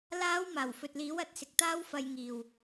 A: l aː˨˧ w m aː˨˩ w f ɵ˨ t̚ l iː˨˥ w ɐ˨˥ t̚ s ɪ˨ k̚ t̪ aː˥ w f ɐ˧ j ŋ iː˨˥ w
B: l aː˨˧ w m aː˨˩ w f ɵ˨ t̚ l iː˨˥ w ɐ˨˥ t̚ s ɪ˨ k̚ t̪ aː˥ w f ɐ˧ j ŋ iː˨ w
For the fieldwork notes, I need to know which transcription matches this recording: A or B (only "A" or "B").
B